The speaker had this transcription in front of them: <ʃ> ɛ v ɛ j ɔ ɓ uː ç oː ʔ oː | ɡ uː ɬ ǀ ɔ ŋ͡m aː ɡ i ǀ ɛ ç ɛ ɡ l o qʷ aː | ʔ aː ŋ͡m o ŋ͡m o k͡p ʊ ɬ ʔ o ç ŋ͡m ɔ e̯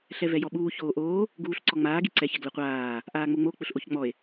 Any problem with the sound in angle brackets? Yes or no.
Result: yes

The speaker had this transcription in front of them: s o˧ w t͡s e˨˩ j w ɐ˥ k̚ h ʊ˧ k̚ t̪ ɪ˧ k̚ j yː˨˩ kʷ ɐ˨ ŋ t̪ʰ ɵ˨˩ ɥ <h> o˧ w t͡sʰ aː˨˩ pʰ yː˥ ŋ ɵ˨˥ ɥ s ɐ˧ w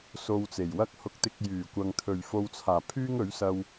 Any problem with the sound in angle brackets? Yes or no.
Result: yes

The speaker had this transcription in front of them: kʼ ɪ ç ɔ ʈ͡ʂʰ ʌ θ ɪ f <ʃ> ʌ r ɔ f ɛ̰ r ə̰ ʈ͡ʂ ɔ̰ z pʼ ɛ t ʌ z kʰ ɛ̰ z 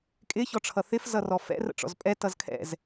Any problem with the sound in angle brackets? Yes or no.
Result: yes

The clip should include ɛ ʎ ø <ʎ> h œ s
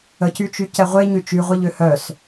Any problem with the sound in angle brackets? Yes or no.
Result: yes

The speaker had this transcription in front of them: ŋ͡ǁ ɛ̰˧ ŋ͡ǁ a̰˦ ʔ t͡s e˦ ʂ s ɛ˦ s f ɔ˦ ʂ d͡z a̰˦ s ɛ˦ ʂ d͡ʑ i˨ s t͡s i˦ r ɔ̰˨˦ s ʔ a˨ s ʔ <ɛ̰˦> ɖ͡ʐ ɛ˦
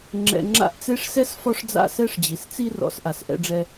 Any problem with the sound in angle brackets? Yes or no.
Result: no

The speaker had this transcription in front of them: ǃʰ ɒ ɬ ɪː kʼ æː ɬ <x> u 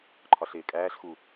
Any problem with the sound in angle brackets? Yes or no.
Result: no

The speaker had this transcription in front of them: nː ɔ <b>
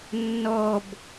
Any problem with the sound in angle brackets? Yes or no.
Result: no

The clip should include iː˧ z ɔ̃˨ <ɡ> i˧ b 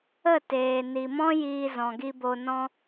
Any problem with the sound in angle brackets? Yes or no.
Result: no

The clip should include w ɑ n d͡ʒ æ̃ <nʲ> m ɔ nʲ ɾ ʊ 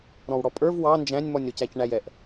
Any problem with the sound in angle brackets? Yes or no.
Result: no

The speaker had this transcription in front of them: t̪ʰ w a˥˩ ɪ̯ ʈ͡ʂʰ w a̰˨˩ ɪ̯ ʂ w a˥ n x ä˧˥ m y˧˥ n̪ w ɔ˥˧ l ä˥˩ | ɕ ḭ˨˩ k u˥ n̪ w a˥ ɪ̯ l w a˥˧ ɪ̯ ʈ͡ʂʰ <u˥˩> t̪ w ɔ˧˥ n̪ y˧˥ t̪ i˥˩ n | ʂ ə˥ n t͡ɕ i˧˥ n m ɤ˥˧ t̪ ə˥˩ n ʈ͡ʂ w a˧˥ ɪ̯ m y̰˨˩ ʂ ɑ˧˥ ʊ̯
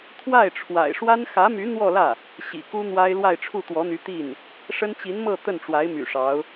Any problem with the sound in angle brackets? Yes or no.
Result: no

